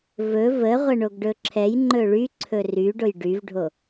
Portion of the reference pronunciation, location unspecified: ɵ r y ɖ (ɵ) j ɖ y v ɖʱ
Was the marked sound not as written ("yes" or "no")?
yes